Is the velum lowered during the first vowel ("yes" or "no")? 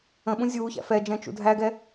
yes